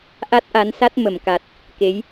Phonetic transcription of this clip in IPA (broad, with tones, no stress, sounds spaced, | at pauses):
ʔ a˦˥ t̚ ʔ a˨˦ n s a˦˥ t̚ m ə˧˩ m k a˨˩ t̚ | k e˨˦ j